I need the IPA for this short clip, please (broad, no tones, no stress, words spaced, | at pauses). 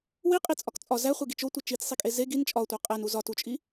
wiqʼit͡sʼɒk t͡sʼɒ zæχʷeɡit͡ʃ otʷe t͡ʃit͡ssˤikʼe ze ɡin t͡ʃʼɒtʷæ qʼænu zɒtut͡ʃʼi